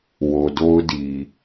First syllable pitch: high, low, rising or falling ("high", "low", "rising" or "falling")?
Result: low